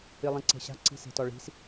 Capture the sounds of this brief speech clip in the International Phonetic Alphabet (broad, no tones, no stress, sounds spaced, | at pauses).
ɨ lˠ ĩ ǀ e̤ ɕ a̤ ǀ i̤ s e̤ t ɔ ɭ i̤ s